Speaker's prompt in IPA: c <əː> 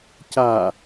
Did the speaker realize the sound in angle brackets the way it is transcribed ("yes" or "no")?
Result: no